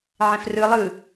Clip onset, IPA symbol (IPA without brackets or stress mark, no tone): ʕ